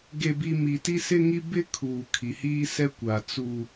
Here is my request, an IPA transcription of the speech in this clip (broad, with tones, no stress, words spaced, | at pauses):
ɡe˦bi˦ mi˨ti˦sɪ˦ŋi˦ bɪ˦kʰuː˨ kʰi˨hiː˦sɛ˦kʷa˨ t͡su˦